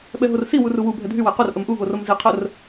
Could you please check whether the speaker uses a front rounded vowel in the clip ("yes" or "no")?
yes